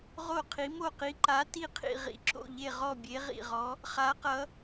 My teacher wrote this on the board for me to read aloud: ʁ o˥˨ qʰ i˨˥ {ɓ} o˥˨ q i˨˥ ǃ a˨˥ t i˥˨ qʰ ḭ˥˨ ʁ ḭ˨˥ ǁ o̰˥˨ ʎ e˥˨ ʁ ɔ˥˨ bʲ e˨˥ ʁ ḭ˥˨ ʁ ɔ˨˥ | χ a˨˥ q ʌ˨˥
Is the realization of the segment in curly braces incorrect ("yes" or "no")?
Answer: yes